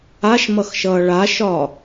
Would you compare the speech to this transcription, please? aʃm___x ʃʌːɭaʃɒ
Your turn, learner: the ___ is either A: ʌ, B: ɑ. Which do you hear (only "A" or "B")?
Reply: A